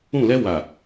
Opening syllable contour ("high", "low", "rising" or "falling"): falling